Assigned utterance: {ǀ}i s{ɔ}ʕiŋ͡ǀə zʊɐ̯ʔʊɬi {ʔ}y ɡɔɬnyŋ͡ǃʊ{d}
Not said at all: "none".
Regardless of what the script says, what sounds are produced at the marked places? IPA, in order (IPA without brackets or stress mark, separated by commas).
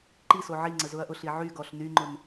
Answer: ǃ, o, ʕ, n